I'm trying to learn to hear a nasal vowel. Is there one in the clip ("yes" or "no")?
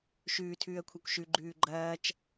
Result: no